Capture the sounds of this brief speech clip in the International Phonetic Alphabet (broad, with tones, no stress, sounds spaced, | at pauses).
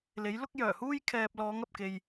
l e˨˥ j l ʊ˥ k̚ j œː˨˩ h uː˥ j kʰ ɛː˨ p̚ l ɔː˨˧ ŋ ɐ˨ p̚ k e˨ j